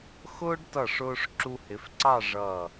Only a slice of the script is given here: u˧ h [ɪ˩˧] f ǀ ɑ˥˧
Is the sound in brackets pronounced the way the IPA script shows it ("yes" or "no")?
yes